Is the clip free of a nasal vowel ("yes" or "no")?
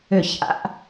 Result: yes